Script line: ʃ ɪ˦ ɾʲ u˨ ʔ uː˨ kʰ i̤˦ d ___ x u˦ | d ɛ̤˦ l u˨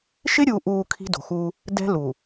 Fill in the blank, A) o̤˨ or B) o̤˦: A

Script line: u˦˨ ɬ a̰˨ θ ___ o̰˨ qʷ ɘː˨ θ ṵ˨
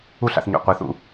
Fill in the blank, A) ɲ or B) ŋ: A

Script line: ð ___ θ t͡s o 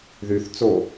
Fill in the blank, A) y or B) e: A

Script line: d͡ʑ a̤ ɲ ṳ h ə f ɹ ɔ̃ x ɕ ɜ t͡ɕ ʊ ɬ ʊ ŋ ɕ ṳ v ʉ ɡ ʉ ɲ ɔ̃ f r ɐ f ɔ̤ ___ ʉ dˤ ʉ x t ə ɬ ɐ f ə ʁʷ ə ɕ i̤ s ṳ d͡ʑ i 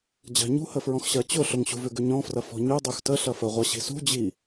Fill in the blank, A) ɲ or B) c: A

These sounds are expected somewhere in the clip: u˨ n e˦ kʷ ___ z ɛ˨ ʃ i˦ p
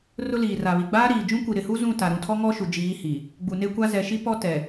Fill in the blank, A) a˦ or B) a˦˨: A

